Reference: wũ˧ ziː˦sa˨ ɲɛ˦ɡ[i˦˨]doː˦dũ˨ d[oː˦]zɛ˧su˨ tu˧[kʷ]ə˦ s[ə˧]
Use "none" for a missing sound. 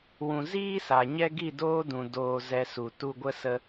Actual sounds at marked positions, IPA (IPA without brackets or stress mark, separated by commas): i˦˨, oː˧, ɡʷ, ə˦